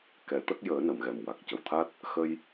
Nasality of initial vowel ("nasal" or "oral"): oral